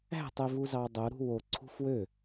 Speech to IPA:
æ̤ tˤ e v u z ɑ dˤ o ɾ ṳ w o ǀʰ ṳ f w ø

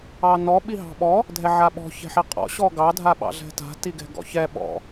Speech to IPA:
ɑ n ɔ ɓ i ɦ ɑ̤ ɓ ɔ | dʱ ɛ ʕ a ɓ ɔ̤ ç ɛ̤ ħ i qʼ ɔ̰ ɕ ɔ ɡ ɑ dʱ a ɓ ɑ̰ ɮ ɛ̤ t a̤ t i ɡ ɛ̤ ɡ ɔ̰ ç ɛ ɓ ɔ̰

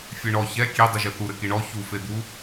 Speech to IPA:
fʲ e ɳ ɔ ç ɛ kʲ e dˤ u ʒ ɘ θ u ɾ ɘ k i ɳ ɔ ç u f e d̪ u

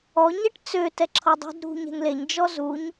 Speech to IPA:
ɔ ɲ ɛ ʈ t͡s ø t ɛ ǁʰ ɔ dˤ ṳ d ɾ ṳ ɲ ɛ̤ ŋ l e ɲ d͡ʒ ɔ z u ɲ

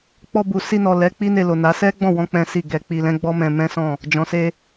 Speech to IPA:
k͡p ɔ˧ b u˨ s i˧ n ɔ˨ l ɛ˨˦ k͡p i˦ n e˧ l o˨ n a˨˦ s ɛ˦ ɡ͡b ɔ̃˦˨ w ɔ̃˧ k͡p ɛ̃˦ s i˦˨ ɡ ɛ˧ k͡p i˧ l ɛ̃˦ ɡ͡b ɔ˦ m ɛ̃˧ m ɛ̃˦ s ɔ̃˦˨ | d͡ʒ ɔ̃˨ s e˧

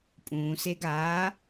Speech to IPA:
pʼ ũː s e ɡ aː

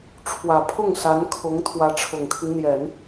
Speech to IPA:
ʈ͡ʂʰ w ä˨˩ pʰ ʊ˥˩ ŋ s a˧˥ n kʰ ʊ˧˥ ŋ t̪ʰ w ä˧˥ ʈ͡ʂʰ ʊ˨˩ ŋ t̪ʰ i˦ ŋ n̪ j ɛ˨˩˦ n

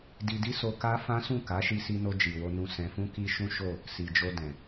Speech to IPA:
d i˧ d i˦ s o˧ k a˦ f ã˦ s ũ˦˨ k a˨˦ ʃ i˧ s i˧ n o˧ d͡ʒ i˨ w o˧ n ũ˧ s ɛ̃˨ f ũ˧ k i˧ ʃ ũ˦ ʃ o˦˨ | s i˨ d͡ʒ o˧ d ɛ̃˨

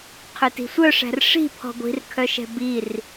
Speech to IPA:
qʰ ø t i̤ sʷ œ ʂ æ̤ r ʂ i̤ pʰ ɔ̤ ɡʷ i̤ r kʰ œ ʃ ɛ̤ b i r

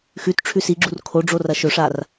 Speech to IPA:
x ʉ t ʈ͡ʂʰ ʉ s i ɡ͡ǁ u r kʰ o ɖ͡ʐ o r ɐ ʃ ɵ ʂ a r

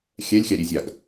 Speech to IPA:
xʲ ɛ lʲ xʲ a ɾʲ e zʲ a ɡ

